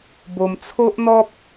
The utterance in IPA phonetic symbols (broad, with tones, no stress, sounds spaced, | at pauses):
b o˧ m t͡sʰ o˦ ʔ n̪ ɔ˦ p̚